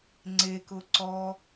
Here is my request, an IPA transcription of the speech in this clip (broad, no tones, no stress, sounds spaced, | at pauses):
ŋ͡ǀ e k ʊ ǀ ɔ